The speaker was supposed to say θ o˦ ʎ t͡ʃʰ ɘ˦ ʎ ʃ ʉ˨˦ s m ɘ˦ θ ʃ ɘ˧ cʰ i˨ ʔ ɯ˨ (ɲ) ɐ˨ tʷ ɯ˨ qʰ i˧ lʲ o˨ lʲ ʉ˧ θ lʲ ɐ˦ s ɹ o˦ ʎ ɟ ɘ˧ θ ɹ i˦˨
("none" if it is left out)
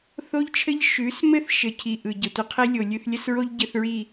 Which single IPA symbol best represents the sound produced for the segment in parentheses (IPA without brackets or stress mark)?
ɟ